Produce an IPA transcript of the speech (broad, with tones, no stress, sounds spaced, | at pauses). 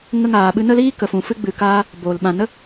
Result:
ŋ ə˧ ŋ aː˨ ɓ ɨ˧ n ə˦ l iː˦ k ə˨ f ũ˨ f ɨ˧ ɡ͡b ɨ˨ k aː˧ | b oː˨ l ɓ ã˨ n ə˦